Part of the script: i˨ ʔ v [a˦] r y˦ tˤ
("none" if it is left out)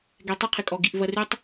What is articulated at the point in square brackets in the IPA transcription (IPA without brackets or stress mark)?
ɐ˦